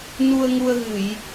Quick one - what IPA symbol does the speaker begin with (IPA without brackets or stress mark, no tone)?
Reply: n